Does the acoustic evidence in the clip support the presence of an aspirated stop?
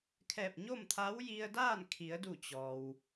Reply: yes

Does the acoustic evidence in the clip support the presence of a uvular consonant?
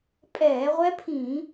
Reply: yes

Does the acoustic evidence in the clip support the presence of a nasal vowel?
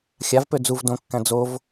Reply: yes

